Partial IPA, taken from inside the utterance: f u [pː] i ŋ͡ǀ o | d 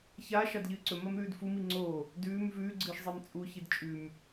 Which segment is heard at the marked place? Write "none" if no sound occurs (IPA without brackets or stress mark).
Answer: m